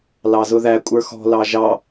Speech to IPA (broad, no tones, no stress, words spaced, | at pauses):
lɑzʊðæ kʷʼə˞xɔ̤ lɑʒɑ